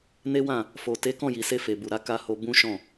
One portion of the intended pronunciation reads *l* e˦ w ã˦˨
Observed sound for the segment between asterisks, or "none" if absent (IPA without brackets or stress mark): n